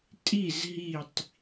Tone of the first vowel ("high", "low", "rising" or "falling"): falling